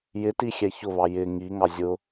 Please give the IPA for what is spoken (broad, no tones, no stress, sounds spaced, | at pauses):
j ɪ t i xʲ ɛ ç ʊ β ɑ j ɪ ŋ i ŋ ɑ zʲ ʊ